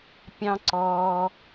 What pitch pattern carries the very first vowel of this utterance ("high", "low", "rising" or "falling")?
high